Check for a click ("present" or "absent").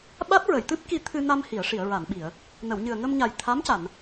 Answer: absent